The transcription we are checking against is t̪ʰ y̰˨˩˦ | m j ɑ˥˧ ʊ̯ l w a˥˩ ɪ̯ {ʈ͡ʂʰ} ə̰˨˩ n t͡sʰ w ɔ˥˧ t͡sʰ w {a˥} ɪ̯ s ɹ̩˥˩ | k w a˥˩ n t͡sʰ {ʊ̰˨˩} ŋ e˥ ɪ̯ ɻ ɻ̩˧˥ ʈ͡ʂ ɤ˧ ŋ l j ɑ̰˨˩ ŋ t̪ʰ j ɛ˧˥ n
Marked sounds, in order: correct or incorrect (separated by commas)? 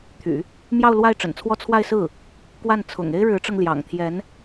incorrect, incorrect, correct